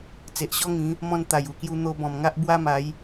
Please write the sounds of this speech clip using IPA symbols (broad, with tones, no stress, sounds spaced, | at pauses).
t͡s e˨ ʔ ɕ ɔ˦ ŋ ĩ˨˦ | m ɔ̃˧ n t̪ a˨˩ j u˨˩ k j u˧ n̪ o˧ b ɔ̃˨˩ m ŋ a˦ ʔ b w a˦ m a˨˦ j